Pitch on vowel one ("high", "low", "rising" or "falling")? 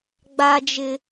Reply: high